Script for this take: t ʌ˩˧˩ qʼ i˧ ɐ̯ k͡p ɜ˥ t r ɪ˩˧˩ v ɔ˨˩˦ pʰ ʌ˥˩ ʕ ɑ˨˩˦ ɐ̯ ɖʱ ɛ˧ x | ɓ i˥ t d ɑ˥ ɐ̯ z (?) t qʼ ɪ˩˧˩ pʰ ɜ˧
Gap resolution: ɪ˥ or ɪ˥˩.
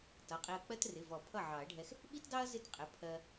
ɪ˥˩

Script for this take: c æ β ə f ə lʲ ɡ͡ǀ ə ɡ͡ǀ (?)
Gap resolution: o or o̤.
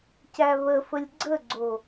o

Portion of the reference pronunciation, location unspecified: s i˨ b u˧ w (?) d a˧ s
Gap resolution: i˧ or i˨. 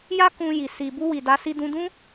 i˨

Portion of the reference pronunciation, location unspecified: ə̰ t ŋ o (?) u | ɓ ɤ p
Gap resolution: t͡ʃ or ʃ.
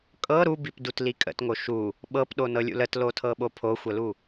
ʃ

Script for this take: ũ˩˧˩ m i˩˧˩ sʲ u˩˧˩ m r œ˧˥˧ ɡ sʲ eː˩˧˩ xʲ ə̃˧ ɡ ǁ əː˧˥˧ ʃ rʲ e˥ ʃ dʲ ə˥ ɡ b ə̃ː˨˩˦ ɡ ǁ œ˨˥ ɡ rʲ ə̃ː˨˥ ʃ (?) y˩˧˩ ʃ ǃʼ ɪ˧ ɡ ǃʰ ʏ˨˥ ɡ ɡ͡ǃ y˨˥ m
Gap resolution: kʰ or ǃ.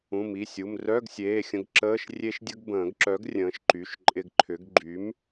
ǃ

